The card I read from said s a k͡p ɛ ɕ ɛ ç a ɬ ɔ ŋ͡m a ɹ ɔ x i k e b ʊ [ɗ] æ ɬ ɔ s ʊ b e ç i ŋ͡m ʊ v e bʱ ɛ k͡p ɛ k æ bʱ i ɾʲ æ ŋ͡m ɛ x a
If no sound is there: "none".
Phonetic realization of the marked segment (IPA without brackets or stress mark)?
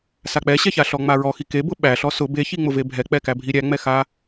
ɓ